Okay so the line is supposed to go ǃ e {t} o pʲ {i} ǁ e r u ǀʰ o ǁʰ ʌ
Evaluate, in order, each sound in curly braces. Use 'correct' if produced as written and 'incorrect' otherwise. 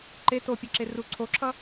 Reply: correct, incorrect: e

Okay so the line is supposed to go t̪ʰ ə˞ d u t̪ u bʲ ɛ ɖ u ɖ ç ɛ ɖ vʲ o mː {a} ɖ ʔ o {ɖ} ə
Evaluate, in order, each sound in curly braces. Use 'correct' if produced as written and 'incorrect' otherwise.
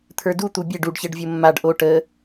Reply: correct, incorrect: ʈ

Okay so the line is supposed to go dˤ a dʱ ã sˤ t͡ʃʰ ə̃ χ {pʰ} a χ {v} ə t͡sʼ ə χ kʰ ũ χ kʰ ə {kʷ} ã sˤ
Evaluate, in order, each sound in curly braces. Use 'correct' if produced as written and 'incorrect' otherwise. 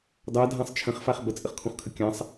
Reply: incorrect: f, incorrect: b, incorrect: kʲ

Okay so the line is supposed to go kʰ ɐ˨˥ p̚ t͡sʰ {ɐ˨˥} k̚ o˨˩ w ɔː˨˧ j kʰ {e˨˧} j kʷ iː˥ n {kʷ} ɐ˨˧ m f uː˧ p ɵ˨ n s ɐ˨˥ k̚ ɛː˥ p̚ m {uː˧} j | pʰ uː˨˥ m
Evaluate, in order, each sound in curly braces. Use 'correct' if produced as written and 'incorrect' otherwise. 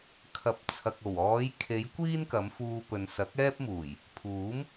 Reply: incorrect: ɐ˨, correct, incorrect: k, incorrect: uː˨˩

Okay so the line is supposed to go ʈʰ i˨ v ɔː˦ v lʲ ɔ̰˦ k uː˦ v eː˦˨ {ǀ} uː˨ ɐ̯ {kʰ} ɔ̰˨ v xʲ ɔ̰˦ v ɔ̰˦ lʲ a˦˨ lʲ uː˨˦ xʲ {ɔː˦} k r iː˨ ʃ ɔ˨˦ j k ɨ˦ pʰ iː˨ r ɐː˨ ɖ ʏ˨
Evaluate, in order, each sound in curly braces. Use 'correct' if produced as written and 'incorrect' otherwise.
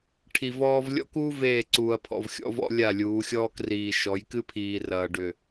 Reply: correct, incorrect: pʰ, correct

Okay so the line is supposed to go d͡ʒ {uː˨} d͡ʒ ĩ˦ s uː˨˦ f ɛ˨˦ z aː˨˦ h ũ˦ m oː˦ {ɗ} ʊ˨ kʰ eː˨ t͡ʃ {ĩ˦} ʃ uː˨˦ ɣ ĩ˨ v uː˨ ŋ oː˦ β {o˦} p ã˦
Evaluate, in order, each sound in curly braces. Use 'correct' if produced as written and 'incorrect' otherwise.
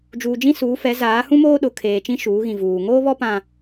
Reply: correct, correct, correct, incorrect: ɔ˦

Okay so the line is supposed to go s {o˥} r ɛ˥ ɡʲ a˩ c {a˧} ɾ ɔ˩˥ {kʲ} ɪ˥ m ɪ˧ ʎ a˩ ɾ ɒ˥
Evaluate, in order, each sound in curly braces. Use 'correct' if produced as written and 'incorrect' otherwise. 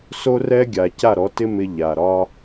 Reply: correct, incorrect: a˥˩, incorrect: t

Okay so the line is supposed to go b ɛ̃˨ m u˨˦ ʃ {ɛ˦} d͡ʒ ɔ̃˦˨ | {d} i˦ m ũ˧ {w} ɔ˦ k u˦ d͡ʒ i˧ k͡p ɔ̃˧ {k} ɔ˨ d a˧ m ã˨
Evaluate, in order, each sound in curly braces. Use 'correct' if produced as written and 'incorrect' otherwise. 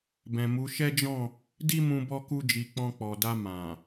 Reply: correct, correct, incorrect: b, incorrect: k͡p

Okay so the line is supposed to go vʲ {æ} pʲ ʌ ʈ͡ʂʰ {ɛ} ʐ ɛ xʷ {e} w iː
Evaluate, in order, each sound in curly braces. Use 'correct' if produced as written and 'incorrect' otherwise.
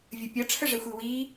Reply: incorrect: ə, incorrect: ə, incorrect: i

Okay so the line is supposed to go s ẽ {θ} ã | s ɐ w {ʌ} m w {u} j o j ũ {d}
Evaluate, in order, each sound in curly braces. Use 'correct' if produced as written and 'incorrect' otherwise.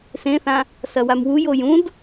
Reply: correct, incorrect: a, correct, correct

